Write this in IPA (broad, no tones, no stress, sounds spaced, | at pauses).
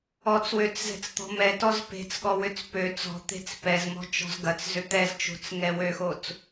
ɔ t͡s w ø t͡s z ɛ̤ t͡s t̪ ɔ̤ m ɛ t ɔ z p e̤ t͡s ɠ ɔ w ʏ t͡s p ø t͡s ɔ̤ t̪ e̤ t͡s p ɛ z m ɔ̤ t͡ʃ ɔ̤ z ɡ ɐ t͡s z ʏ t̪ ɛ z t͡ʃ o̤ t͡s ŋ ɛ w ø x o t͡s